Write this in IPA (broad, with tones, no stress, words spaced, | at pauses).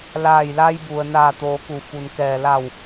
laː˧˩jla˧jbu˩ə̯ naː˧˩t̪oː˩˧ku˩ fu˩nkɛː˩la˧˩w